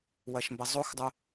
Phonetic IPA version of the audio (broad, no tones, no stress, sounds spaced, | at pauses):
w ɐ ʃ m b ɐ zˤ o x dˤ o